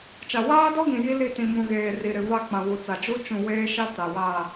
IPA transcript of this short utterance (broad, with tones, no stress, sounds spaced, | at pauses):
t͡ʃ a˨ w aː˦ d ɔ˦ ɡ ĩ˨ j i˦ l i˦˨ t ĩ˨ m ũ˨ ɣ eː˨ r i˨ ɾ ɪ˨ v a˦ k͡p ã˨ w u˨ t͡s a˨ d͡ʒ u˦ t͡ʃ ũ˨ w eː˦ ʃ a˦ t a˨ w aː˦˨